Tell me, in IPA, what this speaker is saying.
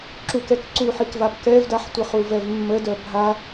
ǁ u k ɛ k ǀ u ħ i k v a p k ɛ v d a ħ tʷ ə χ u v ɛ v mː ə d œ bʱ a

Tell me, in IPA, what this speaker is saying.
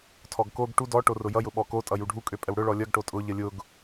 tʰ ɔ ɡ k o ɡ ʈ u d ɔ ʈ o r ʊ j ʌ j ʊ ɓ ɔ k o tʼ ʌ j u ɖʱ u kʼ ø pʼ ə w ɽ ʊ ɭ ɔ lʲ ʌ ɡ ʈ o tʼ ʊ ʎ ə lʲ ʊ ɡ

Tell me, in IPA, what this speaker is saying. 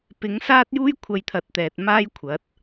p ɪ˨˥ ŋ s aː˥ t̚ j uː˥ j kʷʰ ɐ˧ j t̪ʰ ɐ˨˥ t̚ t̪ ɛː˨ t̚ m aː˥ j kʷʰ ɐ˨˥ t̚

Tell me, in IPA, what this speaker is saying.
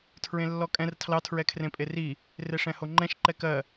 tʰ ɹ ẽ lː ɔ kʼ ɛ̃ r tʰ l ɑ tʰ ɹ ɛ kʰ r ẽ pʼ e r i | r e ʂ ɛ̃ h o ŋ͡ǃ ɛ̃ ʃ ǃ ɛ k ɜ

